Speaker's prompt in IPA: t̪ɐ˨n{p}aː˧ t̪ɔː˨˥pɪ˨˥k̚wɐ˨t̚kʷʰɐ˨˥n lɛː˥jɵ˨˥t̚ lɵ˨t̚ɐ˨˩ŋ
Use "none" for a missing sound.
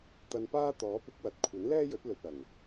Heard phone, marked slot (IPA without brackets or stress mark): p